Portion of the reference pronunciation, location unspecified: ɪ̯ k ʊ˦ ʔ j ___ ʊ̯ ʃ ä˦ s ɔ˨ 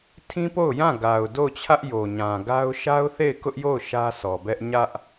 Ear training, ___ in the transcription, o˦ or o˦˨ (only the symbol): o˦˨